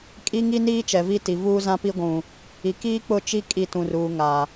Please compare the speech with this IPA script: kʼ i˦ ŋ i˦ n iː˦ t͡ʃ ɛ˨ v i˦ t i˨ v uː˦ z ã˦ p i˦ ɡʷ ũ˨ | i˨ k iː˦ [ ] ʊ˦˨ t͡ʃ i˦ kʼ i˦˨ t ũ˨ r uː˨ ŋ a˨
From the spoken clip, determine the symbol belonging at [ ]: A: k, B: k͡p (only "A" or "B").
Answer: B